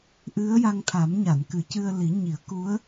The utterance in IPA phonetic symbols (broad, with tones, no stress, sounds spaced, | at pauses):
ʔ ɨ˧˥ ə̯ j a˧ ŋ t̪ʰ a˨˩˦ m ɲ a˨˩˨ n k ɨ˨˩˦ c ɨ˧ ə̯ l i˨˩˦ ɲ i˨˩˦ ə̯ k u˧˥ ə̯